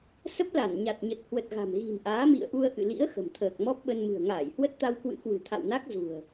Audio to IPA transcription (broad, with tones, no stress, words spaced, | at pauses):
sə˦˥p̚la˧˩nɲa˨˩t̚ɲə˨˩t̚ hwə˨˩t̚ɣa̤˨˩mɣi̤˨˩m ʔaː˨˦mḭ˧˨ə̯ʔu˧ə̯ ʔɨ̰˧˨lḭ˧˥ə̯ xə̤˨˩mt̪ʰəː˨˩k̚ mɔ˦˥p̚ɓə˧n mɨ̤˨˩ə̯ŋaː˧˩j hwə˦˥t̚t̪a˧wkwɨ̰˧˥kwɨ̤˨˩ t̪ʰa̰˧˨wna˦˥k̚ zṳ˨˩ə̯